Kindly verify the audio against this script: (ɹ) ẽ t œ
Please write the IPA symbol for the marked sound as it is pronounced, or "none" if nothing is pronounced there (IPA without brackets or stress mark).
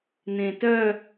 n